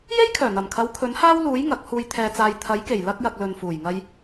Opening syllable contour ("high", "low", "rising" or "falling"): high